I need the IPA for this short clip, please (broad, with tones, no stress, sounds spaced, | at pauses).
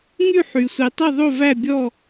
ŋ y˦˨ ħ y˩ sʷ i˩ tˤ i˦˨ ðˤ o˦˨ v æ˦˨ bʲ ɔ˦˨